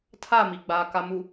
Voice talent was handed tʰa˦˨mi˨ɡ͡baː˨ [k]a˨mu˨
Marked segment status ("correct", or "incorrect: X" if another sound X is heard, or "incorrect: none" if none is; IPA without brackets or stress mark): correct